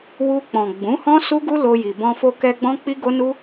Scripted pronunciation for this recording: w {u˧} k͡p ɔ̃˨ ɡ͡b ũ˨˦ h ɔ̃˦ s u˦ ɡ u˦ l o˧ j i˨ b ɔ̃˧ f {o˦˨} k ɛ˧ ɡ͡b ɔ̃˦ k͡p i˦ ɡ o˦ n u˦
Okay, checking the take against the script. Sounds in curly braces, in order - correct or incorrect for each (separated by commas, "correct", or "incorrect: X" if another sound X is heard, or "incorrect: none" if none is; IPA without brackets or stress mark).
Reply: correct, incorrect: o˧